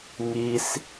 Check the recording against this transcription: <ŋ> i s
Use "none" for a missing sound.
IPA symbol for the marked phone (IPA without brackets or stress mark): ŋ